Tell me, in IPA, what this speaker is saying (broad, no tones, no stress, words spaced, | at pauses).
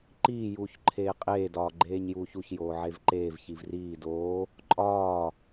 ǃiː juːçǃʰeːqʼeː dɒːɡ͡ǃeːɲjuːçuç joːʕevǃeːv çivriː doː | ǃʼɒː